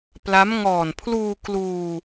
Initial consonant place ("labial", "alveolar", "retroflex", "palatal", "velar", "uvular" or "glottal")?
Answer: labial